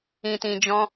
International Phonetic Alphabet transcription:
ĩ˨tĩ˨d͡ʒɔ̃˧

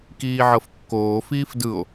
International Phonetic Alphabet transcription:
kiːʕɤfkːoː fiːfdɯo̯

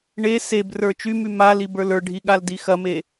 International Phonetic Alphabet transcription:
ɳe sebrə˞ t͡ʃymy malib ə˞lə˞ɖʱi ɠaldixɐme

